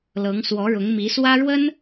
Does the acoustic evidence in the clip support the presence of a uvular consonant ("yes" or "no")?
no